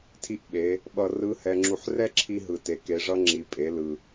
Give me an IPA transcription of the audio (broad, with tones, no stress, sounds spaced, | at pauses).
tʰ i˧˥ ʔ ɓ e˩˧ | ɓ ʌ˧ r ɯ˧˥ h ɛ˧ ŋ͡ǁ u˧ ħ r ɛ˥ ǁʰ i˧ ɦ ɯ˩ t e˩ k e˩˧ ʐ ʌ˧ ŋ͡ǁ i˩ pʼ e˩˧ l ɯ˩